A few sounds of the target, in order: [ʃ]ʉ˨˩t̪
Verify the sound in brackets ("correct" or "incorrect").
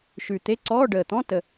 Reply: correct